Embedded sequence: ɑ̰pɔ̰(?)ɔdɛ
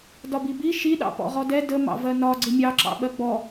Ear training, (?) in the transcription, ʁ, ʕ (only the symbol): ʁ